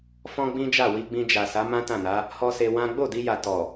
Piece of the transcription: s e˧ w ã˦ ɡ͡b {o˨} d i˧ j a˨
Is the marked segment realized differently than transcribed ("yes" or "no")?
yes